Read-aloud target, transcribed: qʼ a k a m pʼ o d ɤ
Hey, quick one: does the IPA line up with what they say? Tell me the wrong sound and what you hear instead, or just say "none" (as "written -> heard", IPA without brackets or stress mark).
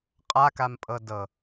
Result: o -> ɤ